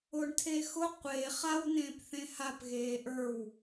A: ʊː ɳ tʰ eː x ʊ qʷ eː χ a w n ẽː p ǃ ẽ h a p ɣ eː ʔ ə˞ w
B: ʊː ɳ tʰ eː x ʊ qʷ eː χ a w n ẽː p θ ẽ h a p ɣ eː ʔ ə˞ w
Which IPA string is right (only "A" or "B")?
B